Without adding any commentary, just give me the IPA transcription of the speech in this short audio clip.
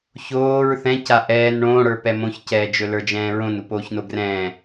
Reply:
ç oː ɹ θ ɛ̃ c a ʔ ɛː n ɳ õː ɽ ə˞ p ɛ m õ ç c ɛː d͡ʒ ɵ l ə˞ d͡ʒ ɛ̃ː ɹ õ n u p oː ç n o ɡ r ɛ̃ː

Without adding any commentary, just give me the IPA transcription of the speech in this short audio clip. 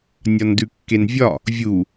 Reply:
nʲ ɒ n d ʉ kː e n vʲ ɒ | vʲ u

